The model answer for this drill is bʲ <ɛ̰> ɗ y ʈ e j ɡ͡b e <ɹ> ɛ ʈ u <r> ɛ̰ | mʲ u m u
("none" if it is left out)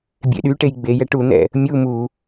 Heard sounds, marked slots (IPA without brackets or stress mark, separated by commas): ḛ, j, n̪